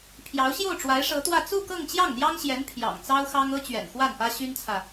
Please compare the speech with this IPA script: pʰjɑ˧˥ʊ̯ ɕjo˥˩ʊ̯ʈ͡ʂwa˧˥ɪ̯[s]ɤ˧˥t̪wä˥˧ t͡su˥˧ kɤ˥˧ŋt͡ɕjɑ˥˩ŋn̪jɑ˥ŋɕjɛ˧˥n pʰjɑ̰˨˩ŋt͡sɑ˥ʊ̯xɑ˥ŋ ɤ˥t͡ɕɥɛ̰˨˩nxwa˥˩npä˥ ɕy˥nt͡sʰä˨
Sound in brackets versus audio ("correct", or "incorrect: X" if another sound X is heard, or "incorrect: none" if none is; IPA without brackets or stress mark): incorrect: ʂ